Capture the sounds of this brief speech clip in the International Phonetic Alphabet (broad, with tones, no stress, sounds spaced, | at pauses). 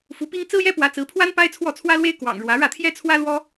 f u˧˥ p i˥ ŋ t͡s ɹ̩˥ j ɛ˥ p w ä˧˥ t͡s ɹ̩˧˥ pʰ w a˥ n p a˥ ɪ̯ t͡sʰ w ɔ˥˩ t͡sʰ w ä˥ l w e˥ ɪ̯ k w ɑ̰˨˩ ŋ ɻ w ä˧˥ ɻ ä˥˩ t̪ʰ j ɛ˥ t͡sʰ w ä˥ l w ɔ˥